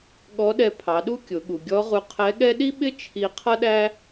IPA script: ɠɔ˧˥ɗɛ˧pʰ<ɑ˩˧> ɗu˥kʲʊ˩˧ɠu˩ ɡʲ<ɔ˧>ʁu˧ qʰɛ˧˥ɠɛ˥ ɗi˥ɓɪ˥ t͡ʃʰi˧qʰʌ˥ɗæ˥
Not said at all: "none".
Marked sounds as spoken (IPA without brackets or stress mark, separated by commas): ɑ˩˧, ɔ˧˥